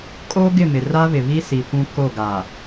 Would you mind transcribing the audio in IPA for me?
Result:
kʼ oː˦ ɡ ɪ˦˨ m ɪ˨ r a˦ β ɪ˨ β i˦ s i˨ kʷ ũ˦ k o˦˨ ɡ a˨

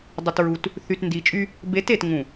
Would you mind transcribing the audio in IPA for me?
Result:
dˤ ʊ˨ t ɹ u˨ t | θ y˨ t n d i˨ t͡ʃʼ y˦ | b e˨˦ t e˨ t ŋ ũ˨

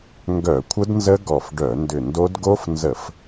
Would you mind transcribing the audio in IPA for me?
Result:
ŋ ɡ œ˧˩˧ kʷʰ ə˦˥ d n z ə˦˥ ɡ ɔ˧˩ f ɖ œ˧˩˧ n d ʏ˧˩ n d o˦˥ d ɡ o˦˥ f n z ə˧˩˧ f

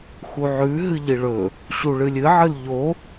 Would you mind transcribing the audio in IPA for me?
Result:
x u ʕ ʉ ɦ ɨ ʎ i ɭ ɵ | ɕ u ɭ ɨ lʲ ɨ ʕ ɨ l ʎ o

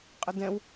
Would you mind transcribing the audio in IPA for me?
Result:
qʼ ə d ɛ̃ w

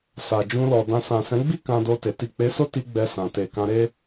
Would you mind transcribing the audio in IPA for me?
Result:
s a˨ d͡ʒ ũ˧ l ɔ˨ d ã˨ s ã˨ s ɛ̃˨˦ ɡ͡b i˦ k ã˧ d o˧ t e˨ t i˨ k͡p e˨˦ s o˦ t i˧ ɡ͡b ɛ˧ s ã˨ t e˨ k ã˧ ɾ e˦

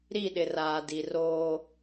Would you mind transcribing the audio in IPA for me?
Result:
ɾ i˦˨ ɗ ɪ˨ r aː˨ d i˨ r oː˦

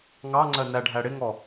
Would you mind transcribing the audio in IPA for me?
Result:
ŋ ɑ ŋ͡ǀ ɜ n æ ɖʱ æ ɽ ɪ ŋ ɔ

